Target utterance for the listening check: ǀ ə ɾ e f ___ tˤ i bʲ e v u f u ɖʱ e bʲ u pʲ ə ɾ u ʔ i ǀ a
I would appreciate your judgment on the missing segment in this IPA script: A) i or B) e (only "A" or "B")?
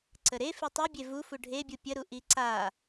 A